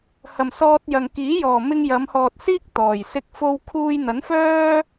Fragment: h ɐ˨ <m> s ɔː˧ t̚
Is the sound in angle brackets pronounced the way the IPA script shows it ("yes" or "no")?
yes